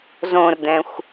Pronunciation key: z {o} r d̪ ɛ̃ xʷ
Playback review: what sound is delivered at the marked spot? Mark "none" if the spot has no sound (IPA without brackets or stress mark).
õ